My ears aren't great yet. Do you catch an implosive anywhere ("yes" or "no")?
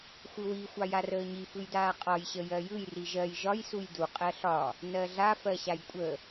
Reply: no